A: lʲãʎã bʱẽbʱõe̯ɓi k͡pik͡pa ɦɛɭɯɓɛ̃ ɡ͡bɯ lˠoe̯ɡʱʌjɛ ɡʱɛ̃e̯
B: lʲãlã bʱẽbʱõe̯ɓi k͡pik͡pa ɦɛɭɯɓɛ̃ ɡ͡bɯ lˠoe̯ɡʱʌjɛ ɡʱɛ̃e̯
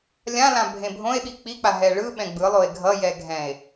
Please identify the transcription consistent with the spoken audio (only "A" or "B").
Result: B